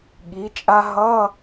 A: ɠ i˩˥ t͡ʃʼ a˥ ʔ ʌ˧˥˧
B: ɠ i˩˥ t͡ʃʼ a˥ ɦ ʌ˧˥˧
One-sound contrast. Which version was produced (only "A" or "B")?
B